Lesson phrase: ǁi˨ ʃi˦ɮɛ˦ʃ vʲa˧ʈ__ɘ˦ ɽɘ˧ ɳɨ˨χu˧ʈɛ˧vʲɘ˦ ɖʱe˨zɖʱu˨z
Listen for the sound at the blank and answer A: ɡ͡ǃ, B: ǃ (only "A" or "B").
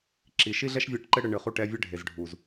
B